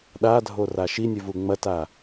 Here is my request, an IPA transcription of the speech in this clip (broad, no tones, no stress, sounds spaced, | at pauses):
ɗ a dʱ o r a ʃ i nʲ ʉ v u ŋ͡m ɐ t a